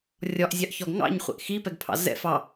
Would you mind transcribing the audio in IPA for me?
rʲɒʔzʲɑʔçɒɡ ŋɑ̰ɲχʷɛ̰ʔ xipɛɡpʰɑ̰ zɛ̰f ɑ

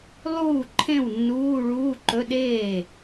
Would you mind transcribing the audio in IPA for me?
lˠuː˥˩ǃʰẽ˥˩wnːuː˧˥˧ ɭuː˧˥˧ǃɵ˧˥˧ɗeː˥˩

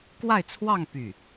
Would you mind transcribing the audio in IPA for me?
kwa˥˧ɪ̯t͡sʰwɑ˥˧ŋ py˥˩

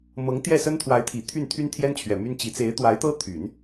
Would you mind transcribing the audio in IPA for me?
mɤ˧˥ŋt̪jɛ˥˩ sə˥nt̪ʰwa˧˥ɪ̯t̪ʰi˨˩ t̪ʰy˥˩n t̪ʰy˥n t̪ʰjɛ˥nt͡ɕʰɥɛ˨˩ my˥nt͡ɕi˧˥ t͡se˧˥ɪ̯t̪wa˧˥ɪ̯t̪ɤ˥t̪ʰy˨˩˦n

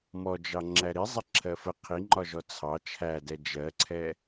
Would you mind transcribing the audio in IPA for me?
mɔd͡ʒɑ ŋ͡ǁæɾi zˤɪǁʰɜfə qʰiŋ͡ǃɒʒɔ t͡sʰɑ t͡ʃʰædɛ d͡ʒɜǀʰɛ

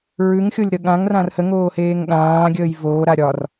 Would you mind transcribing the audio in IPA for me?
ɹʉŋxʲolʲɾə ɠãŋrãr həŋoːheːŋ ɠãːɡʲəːj voːɾa ɾʲɒr

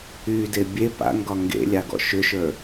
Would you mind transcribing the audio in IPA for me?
yde bʲe pa̰ŋɡɒ ŋɡḛlʲaɡɔ̰ ʃʏʃə˞

